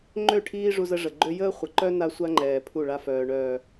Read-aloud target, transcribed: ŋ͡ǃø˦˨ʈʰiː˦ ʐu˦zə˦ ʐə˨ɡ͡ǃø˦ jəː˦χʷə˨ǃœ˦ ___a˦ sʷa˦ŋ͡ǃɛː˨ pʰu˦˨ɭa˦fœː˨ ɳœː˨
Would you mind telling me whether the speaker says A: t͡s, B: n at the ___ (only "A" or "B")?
B